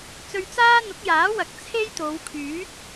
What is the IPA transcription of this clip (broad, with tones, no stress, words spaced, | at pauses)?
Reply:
t͡sɵ˧ɥt͡saː˥ n̪ʊ˨˥k̚jaː˨˥wɐ˨˥k̚ t͡sʰe˥jt̪o˨˧wkʰyː˨˥t̚